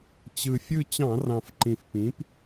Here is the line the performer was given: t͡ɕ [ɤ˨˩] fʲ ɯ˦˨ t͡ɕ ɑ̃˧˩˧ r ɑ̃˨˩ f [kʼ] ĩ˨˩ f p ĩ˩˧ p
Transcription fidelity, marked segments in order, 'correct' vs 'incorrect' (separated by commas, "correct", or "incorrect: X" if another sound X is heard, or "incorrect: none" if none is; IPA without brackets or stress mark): incorrect: ɯ˨˩, incorrect: ǃ